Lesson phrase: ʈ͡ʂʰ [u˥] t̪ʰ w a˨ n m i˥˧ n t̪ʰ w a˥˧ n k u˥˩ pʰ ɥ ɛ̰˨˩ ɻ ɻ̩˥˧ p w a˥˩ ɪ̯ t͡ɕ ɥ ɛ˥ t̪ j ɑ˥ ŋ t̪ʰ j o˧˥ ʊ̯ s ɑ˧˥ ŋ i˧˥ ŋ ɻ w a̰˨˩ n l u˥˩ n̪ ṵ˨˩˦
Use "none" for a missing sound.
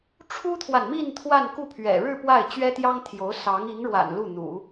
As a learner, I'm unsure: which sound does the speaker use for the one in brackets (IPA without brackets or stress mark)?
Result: u˥